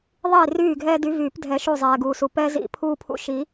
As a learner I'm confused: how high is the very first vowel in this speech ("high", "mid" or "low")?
high